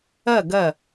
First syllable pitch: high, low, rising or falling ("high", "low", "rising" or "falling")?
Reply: falling